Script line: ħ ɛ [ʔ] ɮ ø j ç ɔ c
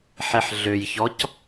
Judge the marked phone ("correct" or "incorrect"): incorrect